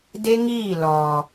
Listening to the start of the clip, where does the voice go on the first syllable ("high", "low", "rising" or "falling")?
high